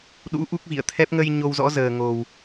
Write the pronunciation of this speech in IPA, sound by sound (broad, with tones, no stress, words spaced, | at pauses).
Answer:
ɗṵ˧˥ ʔu˦˥k̚vḭ˧˨ə̯t̪ʰɛ˦˥p̚ ŋə˧j ɲo˧wzɔ̰˧˥zəː˨˩ ŋo˨˩w